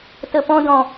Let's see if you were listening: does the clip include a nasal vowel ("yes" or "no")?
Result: yes